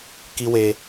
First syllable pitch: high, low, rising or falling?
high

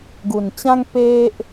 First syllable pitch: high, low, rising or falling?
low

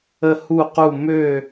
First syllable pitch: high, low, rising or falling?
falling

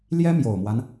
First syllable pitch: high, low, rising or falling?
high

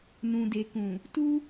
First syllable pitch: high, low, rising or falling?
low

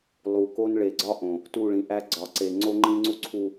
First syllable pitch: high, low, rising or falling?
low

